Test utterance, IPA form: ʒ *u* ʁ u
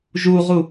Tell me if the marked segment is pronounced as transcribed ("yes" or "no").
yes